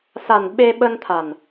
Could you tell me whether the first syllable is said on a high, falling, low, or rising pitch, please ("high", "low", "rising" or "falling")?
low